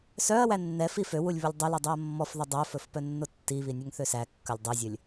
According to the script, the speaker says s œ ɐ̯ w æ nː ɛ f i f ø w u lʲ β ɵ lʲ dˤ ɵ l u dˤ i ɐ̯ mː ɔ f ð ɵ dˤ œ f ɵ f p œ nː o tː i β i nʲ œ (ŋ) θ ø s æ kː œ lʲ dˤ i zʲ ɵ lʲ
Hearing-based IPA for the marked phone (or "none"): ŋ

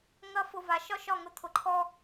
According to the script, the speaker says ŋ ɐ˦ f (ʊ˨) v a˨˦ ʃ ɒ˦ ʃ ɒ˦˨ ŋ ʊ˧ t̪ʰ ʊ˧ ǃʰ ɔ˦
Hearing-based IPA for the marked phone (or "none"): ʊ˧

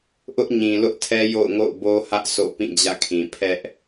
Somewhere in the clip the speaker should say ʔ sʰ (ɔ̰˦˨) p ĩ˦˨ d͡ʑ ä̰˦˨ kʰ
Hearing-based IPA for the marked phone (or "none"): o̰˦˨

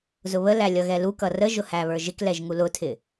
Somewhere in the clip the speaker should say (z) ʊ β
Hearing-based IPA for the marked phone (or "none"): z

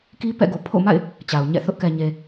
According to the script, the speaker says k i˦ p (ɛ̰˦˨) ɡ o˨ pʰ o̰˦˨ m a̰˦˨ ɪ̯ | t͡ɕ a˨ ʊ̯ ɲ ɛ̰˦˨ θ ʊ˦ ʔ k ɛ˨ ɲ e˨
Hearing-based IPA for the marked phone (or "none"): ɛ̰˦˨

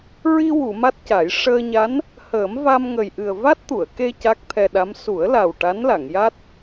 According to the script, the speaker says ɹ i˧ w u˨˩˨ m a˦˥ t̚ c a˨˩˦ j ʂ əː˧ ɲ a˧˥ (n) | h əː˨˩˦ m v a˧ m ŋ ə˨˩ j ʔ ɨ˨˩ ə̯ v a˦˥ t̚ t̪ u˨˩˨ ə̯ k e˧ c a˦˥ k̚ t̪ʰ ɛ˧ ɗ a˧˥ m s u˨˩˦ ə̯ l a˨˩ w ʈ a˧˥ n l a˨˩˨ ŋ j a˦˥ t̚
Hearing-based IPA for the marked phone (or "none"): n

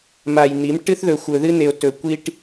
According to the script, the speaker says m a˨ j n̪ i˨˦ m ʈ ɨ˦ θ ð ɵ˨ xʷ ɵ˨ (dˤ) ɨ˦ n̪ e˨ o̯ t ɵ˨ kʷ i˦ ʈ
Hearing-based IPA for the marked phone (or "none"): ð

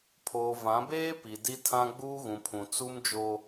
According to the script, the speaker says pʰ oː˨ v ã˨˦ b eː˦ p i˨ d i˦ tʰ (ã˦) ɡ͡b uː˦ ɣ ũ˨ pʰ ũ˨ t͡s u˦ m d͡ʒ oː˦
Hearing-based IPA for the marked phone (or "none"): ã˦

